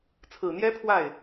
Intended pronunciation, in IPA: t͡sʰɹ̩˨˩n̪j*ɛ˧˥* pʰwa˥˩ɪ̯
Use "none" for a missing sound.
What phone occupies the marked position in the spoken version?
ɛ˥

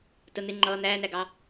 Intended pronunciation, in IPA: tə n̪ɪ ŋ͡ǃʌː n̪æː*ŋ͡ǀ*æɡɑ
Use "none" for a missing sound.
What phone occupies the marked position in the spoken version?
n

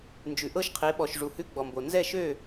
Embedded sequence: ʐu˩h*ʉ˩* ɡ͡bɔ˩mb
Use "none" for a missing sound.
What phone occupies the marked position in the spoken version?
ʉ˧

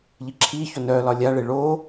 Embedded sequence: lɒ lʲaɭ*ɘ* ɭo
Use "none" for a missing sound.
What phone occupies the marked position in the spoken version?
e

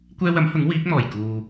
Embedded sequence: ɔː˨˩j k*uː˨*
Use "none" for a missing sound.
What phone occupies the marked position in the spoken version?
uː˨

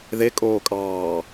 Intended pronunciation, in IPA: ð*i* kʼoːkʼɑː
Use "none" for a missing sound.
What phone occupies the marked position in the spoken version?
e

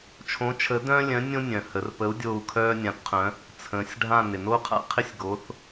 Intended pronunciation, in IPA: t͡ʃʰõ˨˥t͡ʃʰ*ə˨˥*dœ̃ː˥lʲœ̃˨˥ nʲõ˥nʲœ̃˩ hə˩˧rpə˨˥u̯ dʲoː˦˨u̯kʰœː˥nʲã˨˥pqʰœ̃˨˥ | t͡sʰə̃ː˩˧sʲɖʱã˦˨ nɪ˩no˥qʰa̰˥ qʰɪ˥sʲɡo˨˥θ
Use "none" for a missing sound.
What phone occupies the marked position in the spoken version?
ə˨˥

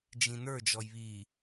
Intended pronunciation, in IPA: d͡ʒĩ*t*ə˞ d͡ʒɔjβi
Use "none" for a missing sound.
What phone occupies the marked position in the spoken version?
n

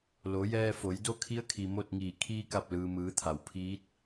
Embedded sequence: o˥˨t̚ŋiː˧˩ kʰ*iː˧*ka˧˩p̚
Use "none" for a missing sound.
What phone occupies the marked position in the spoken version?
iː˧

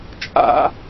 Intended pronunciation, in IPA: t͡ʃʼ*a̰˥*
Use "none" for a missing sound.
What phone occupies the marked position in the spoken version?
a̰˥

